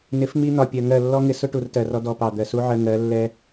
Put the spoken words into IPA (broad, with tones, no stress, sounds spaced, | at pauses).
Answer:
n ɪ˨˦ f m i˧ n̪ ɒ˨ pʲ ɜ˨ ŋ ɜ˦˨ lː ɔ˦ ŋ ɪ˧ s ʊ˦ ʈ u˨ r t ɜ˨ r ɔ˧ d ɔ˧ p ɑ˨ d̪ ɜ˨ s u˦ ʕ ɜ˧ ŋ ɜ˨˦ lː ɛ˧